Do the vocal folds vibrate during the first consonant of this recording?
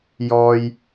yes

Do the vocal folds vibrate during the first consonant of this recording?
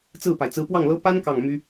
no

